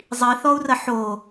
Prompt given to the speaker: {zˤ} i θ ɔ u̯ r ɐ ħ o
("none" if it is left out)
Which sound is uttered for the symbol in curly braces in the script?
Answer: zˤ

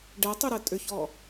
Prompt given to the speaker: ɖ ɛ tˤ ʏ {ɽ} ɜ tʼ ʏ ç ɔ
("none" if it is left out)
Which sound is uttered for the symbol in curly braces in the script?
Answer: ɾ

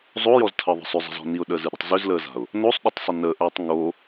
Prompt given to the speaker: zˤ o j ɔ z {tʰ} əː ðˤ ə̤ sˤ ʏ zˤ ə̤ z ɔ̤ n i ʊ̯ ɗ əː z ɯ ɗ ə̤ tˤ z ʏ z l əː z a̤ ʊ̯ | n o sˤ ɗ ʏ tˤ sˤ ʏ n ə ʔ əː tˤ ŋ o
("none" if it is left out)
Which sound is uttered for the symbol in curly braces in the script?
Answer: tʰ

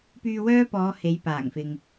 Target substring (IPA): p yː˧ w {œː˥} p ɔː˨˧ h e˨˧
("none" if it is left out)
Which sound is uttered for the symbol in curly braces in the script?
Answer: œː˥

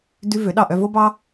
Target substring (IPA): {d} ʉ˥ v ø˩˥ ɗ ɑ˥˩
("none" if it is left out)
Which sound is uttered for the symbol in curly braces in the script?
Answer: d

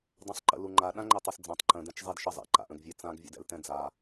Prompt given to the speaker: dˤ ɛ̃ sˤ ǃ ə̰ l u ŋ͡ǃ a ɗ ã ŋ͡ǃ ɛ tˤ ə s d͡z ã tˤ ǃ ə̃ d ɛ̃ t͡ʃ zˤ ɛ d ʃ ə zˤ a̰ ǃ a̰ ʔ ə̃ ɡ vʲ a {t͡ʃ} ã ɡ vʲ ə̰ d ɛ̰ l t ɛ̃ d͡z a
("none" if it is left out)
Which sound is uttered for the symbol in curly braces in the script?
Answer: t͡s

